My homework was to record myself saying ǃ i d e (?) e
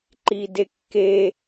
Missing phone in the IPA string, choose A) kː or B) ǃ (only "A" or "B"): A